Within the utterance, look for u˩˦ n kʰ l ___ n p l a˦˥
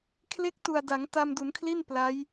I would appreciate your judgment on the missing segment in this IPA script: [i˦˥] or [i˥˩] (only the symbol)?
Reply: i˥˩